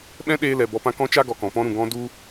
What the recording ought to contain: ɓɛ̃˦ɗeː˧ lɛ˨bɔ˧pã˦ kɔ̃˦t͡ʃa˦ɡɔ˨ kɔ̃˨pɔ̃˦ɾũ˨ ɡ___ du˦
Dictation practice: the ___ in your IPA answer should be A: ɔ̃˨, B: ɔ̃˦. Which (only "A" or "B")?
B